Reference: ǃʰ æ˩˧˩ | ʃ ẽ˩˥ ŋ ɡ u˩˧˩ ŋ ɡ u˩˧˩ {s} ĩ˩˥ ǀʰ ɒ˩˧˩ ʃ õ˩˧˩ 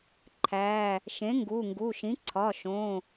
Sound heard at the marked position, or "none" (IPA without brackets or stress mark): ʃ